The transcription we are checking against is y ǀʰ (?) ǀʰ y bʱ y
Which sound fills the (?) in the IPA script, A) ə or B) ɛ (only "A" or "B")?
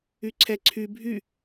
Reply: B